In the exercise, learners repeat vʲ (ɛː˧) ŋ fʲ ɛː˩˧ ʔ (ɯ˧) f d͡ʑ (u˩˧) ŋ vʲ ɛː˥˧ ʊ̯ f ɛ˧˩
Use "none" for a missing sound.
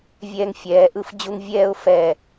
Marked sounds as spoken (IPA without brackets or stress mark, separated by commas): ɛː˧, ɯ˧, u˥˧